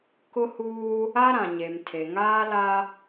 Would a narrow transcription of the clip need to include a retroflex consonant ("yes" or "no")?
no